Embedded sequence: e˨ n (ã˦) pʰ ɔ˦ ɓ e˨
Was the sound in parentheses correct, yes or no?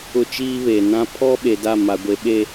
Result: yes